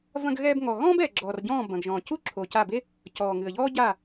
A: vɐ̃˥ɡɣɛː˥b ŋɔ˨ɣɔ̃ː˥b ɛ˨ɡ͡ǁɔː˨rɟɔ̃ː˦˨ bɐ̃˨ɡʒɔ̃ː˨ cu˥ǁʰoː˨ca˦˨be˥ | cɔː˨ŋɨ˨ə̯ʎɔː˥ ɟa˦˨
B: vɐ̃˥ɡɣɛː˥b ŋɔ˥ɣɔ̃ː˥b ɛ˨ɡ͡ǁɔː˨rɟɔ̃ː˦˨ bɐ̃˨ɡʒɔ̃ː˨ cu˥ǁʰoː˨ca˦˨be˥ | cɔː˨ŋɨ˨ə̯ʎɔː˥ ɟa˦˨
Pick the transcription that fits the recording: A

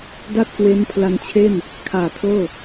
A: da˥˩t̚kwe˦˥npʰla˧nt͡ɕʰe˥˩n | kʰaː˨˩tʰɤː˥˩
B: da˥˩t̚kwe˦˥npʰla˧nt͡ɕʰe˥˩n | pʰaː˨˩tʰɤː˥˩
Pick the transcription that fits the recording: A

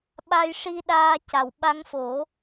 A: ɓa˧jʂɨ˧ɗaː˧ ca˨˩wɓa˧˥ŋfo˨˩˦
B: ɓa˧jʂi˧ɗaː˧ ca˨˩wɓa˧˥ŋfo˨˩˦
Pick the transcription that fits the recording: B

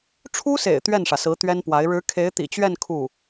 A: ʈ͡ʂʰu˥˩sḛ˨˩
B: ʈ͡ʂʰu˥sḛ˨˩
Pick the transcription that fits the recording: B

